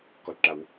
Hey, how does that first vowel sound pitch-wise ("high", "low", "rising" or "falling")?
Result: low